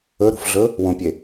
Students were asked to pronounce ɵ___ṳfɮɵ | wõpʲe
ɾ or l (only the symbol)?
ɾ